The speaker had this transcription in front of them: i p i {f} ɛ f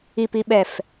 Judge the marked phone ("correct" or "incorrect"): incorrect